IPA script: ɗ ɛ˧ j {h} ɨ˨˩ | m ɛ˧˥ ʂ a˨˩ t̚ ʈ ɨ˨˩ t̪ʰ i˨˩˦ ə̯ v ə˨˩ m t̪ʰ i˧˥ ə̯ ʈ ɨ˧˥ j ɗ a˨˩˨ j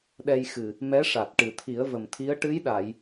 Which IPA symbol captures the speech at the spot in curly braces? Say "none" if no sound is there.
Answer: x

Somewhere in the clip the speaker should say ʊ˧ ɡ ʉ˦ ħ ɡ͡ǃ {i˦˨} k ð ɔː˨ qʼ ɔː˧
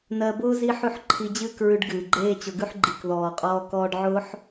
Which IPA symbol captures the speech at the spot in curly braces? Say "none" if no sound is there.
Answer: i˨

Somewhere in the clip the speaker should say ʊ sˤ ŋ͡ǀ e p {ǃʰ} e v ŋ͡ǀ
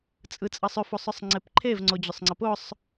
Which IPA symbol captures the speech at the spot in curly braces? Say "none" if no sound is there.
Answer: ǃʰ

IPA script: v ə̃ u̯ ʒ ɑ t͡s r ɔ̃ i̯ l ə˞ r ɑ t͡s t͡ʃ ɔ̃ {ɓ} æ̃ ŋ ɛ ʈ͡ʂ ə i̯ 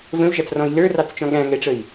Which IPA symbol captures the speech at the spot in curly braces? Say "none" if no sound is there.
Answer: ɠ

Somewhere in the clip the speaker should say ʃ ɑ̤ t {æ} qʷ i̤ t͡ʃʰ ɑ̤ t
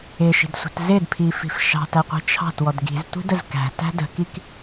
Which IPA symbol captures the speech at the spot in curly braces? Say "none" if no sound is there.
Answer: æ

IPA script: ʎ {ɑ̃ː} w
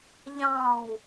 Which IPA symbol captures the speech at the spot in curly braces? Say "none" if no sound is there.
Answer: ɑ̃ː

